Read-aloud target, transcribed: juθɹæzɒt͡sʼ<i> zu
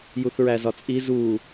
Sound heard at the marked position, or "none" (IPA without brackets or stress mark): i